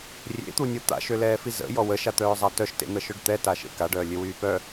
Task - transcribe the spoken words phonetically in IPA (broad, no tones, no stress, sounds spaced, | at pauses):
rʲ ḛ t̪ u nʲ o t̪ a̰ ʃ ø l ɛː f i z ə̰ j ɔ w ə ʃ a t̪ œː zˤ a t œ ʃ t ḛ n̪ ə ʃ œ ɖ t̪ ɛ t a ʃ ḛ k a ɖ œː lʲ ø w yː p œ